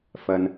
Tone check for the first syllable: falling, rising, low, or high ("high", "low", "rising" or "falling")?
low